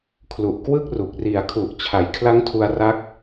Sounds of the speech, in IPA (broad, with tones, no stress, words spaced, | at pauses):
kʰlu˨˩ʔ kwɯ˥˩k̚ru˨˩k̚ ri˨˩a̯kʰu˨˩ʔ t͡ɕʰa˩˦jkʰla˦˥ŋtʰu˧a̯ ra˦˥k̚